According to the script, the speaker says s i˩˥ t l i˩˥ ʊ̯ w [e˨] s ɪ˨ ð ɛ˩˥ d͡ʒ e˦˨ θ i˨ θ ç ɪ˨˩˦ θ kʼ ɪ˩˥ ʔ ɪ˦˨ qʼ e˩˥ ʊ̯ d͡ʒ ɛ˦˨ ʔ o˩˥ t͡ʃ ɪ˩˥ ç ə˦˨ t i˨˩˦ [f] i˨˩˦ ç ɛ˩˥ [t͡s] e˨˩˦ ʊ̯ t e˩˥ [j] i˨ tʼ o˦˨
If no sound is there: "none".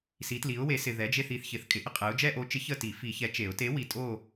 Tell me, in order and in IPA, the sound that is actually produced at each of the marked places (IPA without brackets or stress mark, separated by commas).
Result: e˩˥, f, t͡ʃ, w